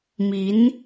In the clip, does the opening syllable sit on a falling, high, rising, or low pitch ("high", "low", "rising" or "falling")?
rising